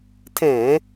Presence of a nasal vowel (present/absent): present